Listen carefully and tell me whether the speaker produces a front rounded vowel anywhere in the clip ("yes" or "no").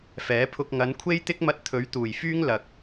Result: yes